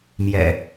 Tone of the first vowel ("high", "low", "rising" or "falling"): low